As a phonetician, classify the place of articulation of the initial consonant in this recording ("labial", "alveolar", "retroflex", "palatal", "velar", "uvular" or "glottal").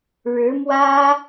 retroflex